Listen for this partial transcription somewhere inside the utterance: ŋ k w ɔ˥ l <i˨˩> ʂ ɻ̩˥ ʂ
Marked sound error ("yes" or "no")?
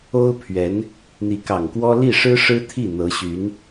yes